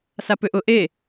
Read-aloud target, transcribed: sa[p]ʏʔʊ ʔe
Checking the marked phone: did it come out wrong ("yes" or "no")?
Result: no